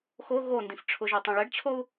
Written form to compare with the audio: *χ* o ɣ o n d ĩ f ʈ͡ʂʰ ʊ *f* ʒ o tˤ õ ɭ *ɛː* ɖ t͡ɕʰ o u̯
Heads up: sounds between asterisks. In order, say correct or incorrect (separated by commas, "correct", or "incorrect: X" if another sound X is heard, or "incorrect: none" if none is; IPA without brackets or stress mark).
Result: incorrect: x, incorrect: none, incorrect: ɛ